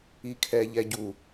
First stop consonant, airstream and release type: aspirated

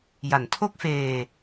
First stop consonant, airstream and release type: aspirated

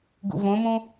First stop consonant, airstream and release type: plain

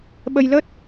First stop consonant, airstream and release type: implosive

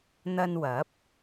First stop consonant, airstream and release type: plain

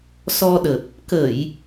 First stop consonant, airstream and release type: implosive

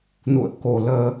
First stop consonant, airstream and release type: plain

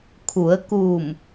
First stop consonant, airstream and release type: aspirated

